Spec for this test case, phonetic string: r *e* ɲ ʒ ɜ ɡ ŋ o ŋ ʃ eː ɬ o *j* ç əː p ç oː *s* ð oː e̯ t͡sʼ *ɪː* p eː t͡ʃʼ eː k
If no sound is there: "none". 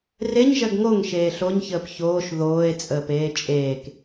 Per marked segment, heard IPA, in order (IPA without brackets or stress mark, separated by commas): e, ɲ, ʃ, əː